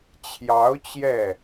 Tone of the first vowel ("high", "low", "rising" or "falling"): rising